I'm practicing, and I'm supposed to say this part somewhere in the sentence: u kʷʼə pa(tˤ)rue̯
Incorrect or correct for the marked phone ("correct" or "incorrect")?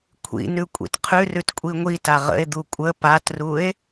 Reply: incorrect